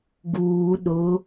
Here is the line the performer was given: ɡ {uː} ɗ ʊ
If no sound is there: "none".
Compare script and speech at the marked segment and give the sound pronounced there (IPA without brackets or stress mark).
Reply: uː